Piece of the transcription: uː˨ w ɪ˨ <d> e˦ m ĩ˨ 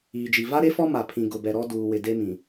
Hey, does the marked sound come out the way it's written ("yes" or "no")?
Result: yes